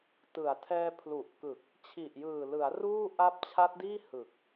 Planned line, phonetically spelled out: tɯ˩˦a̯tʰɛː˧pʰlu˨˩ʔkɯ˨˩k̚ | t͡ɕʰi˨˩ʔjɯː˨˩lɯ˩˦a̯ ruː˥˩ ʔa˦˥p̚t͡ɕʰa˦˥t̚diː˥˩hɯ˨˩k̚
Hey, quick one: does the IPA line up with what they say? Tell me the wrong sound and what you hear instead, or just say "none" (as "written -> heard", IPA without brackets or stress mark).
none